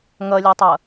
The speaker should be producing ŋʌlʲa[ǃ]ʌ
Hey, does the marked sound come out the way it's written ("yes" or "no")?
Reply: no